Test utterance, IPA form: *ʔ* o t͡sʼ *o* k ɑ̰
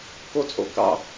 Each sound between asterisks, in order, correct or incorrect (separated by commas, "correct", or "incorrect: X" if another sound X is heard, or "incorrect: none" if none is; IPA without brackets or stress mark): incorrect: k, incorrect: o̰